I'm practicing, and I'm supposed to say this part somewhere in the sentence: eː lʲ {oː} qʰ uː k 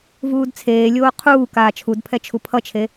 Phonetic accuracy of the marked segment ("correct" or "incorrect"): correct